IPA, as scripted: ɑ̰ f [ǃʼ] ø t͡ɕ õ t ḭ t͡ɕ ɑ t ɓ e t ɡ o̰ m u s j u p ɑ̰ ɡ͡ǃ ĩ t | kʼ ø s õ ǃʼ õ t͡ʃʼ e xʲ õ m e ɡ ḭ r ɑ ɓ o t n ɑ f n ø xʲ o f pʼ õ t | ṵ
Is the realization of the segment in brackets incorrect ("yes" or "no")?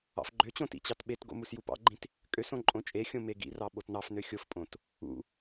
yes